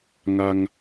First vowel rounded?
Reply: no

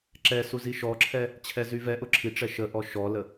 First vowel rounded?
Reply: no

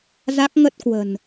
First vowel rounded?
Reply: no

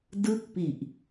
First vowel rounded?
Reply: no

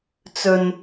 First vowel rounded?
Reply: yes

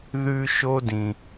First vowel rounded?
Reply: yes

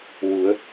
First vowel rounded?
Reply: yes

